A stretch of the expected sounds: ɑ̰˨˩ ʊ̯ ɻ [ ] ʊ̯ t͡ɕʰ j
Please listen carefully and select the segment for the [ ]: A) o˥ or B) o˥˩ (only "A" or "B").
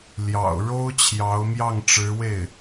A